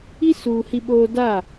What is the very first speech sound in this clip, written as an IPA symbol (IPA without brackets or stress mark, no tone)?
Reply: i